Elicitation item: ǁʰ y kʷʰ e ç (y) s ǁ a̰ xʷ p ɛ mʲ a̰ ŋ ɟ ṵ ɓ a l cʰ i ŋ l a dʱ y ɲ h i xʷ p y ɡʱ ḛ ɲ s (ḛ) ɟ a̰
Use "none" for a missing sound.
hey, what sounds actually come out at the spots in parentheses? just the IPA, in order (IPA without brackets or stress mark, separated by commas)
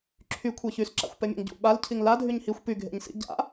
y, ḭ